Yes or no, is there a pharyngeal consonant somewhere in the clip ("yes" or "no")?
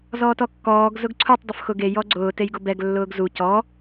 no